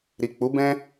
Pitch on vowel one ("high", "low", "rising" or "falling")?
low